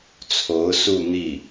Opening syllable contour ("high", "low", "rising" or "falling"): rising